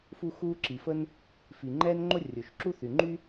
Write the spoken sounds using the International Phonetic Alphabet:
f u˥ x uː˥ ǁ i˩ f ə˥ n | f i˩ ŋ͡ǃ ɛː˥ n ŋ͡ǃ o˥ rʲ o˩ ʃ ǁ u˥ θ y˩ ŋ͡ǃ y˥

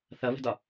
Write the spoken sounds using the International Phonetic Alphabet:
θ ʌ β ə̤ d ɒ

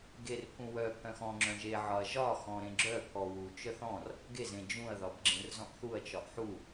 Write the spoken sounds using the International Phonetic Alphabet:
ɡ e r pʰ ũ w œ pʰ œ̃ x ɔ̃ ŋ͡ǁ œ̃ ʒ e ʕ ɒ ɐ̯ ʒ ɒ x ɔ̃ ɾ ẽ ɡ͡ǁ œ pʰ ɔ w u t͡ʃ œ θ ɔ̃ r | ɡ e z ẽ d͡ʒ ũ ɐ̯ ð ɒ b ɡ͡ǁ ẽ r z ɔ̃ ʔ θ u ɐ̯ t͡ʃ ɒ ʔ ħ u

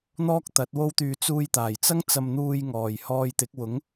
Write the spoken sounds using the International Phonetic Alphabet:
n̪ ɔː˥ k̚ t̪ ɐ˨˥ t̚ w o˥ w t̪ yː˧ t͡s uː˧ j t̪ aː˨˩ j t͡s ɐ˥ ŋ t͡s ɐ˧ m n̪ uː˧ j ŋ ɔː˨˩ j h ɔː˧ j t̪ ɪ˨˥ k̚ w ʊ˨˥ ŋ

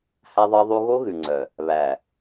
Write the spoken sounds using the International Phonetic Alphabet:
h æ˦ ðˤ ɑ˦ ðˤ u˦ ɣ o˦ ɣ ʉ˨ ŋ͡ǀ œ˨ | β æ˨

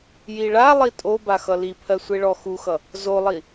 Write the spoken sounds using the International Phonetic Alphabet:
j i ɭ a lˠ i tʼ o b a x ʌ l i pʰ ɜ sʷ e ɭ ɔ x u x ʌ | z o lˠ i

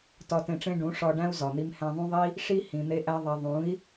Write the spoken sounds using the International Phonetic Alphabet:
t ɒ˧ t ẽ˧ ʈ͡ʂ ẽ˦ ɖ ũ˨˦ ʂ ɒ˧ ɖ æ̃˦ u̯ z ɒ˨ n̪ i˧ m h æ̃˧ ðˤ ũ˦ ðˤ i˦ | ʂ i˦ h ĩ˨ n̪ e˦ ʔ æ˦ ðˤ æ˧ ðˤ ũ˨˦ i̯

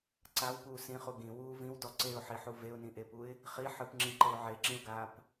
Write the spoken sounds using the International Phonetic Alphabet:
ǀ a w p uː s ĩ χ u ɡ ĩ w uː v ĩ w d ɔ ǀ e ʊ̯ ħ i ħ u v e ʊ̯ n ĩ ʔ e p u ɪ̯ | χ i ħ ɯ p ŋ͡ǁ ĩ ǃ ɤ ʊ̯ ʕ e ǁ ĩ ʊ̯ ɡ aː p

